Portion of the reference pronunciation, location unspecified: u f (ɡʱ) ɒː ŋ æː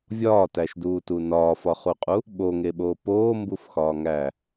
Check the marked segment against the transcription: incorrect: x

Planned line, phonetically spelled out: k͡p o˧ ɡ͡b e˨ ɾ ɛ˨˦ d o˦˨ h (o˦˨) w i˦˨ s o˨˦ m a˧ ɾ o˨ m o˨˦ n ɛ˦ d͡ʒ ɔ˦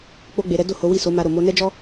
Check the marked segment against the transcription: incorrect: o˨˦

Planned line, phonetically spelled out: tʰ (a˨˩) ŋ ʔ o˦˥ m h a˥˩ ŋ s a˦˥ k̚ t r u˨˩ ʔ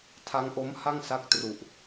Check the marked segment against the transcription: incorrect: a˦˥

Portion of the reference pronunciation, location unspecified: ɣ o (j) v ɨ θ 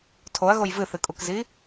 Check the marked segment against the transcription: correct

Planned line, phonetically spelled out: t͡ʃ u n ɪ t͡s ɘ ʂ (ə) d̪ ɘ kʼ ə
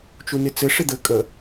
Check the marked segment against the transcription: incorrect: ɪ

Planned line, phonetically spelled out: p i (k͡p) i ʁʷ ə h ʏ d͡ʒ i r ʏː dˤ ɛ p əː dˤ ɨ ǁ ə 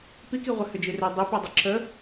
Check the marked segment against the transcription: incorrect: k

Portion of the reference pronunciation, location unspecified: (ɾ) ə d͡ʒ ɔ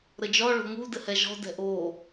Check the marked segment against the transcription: correct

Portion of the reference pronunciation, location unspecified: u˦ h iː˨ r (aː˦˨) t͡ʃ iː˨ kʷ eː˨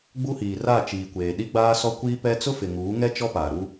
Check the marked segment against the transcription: incorrect: a˦˨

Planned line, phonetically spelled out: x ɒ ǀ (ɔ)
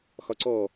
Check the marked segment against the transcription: correct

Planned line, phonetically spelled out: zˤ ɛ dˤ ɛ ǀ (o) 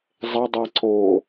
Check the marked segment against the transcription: correct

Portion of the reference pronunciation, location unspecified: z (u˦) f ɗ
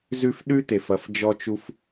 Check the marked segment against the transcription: incorrect: ʉ˦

